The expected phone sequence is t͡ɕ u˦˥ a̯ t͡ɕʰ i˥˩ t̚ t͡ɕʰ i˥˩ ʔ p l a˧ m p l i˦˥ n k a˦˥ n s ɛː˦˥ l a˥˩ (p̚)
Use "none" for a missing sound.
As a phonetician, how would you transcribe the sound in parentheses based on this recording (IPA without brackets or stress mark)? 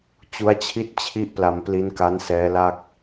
k̚